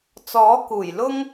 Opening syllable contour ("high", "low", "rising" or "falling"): rising